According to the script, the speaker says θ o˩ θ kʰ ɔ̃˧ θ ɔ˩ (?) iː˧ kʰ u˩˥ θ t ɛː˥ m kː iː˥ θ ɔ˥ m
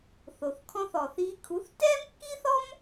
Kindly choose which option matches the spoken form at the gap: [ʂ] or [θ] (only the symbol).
θ